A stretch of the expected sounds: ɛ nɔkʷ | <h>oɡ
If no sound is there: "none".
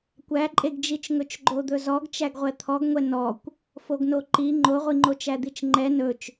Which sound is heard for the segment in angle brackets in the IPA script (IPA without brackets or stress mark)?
f